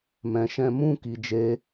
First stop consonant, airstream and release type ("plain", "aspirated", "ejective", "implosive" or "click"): plain